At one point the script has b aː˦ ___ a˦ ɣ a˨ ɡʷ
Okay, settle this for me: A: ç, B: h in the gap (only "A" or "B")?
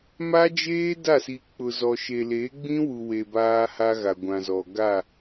B